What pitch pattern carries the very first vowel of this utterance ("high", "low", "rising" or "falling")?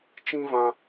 high